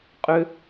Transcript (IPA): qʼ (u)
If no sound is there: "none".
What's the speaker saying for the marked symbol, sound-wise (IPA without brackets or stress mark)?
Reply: ʏ